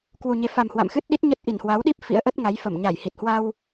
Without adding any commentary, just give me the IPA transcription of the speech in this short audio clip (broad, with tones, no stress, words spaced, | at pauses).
kwu˨˩ɲe˨˦fa˨˩m hwa̰˧˨mxɨ˦˥t̚ ɗi˦˥t̚ɲə˦˥t̚ʔi˧˩n hwa˨˦wɗi˦˥p̚ fḭ˧˥ə̯ʔə˦˥t̚ŋa˨˦j fə˧˩m ɲa˧˩jhi˨˩t̚ hwa˧w